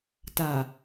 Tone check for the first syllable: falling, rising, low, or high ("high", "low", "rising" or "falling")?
low